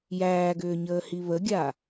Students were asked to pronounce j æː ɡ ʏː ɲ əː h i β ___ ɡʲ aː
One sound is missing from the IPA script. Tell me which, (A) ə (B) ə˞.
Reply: A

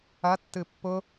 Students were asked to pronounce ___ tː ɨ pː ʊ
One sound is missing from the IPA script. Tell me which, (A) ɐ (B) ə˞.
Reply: A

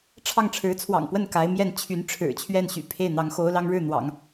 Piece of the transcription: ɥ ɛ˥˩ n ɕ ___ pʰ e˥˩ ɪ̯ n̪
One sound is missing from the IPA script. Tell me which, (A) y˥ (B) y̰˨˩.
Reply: B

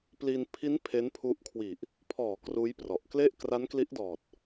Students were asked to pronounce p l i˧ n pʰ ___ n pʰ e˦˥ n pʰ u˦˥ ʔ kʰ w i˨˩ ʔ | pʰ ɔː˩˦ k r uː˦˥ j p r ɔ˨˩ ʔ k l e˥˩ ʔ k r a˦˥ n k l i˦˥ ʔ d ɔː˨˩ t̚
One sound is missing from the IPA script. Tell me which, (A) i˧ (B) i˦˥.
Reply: B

